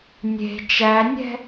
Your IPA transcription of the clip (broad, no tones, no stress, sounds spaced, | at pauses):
nʲ e̤ t͡ʃ æ nʲ ɛ̤